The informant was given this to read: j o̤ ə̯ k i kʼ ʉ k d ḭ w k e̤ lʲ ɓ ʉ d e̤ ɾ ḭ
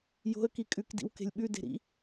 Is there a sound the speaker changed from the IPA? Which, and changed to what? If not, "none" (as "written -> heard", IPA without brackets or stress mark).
none